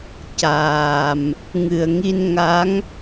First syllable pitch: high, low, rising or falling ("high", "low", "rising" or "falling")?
low